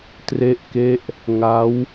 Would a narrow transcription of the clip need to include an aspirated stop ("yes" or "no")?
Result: no